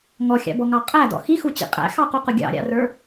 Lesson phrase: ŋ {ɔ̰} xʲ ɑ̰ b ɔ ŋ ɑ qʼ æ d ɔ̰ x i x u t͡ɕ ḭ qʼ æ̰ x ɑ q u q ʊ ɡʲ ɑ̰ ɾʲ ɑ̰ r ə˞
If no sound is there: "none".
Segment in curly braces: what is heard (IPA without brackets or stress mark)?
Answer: ɔ